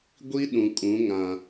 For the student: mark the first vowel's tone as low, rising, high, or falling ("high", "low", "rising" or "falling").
high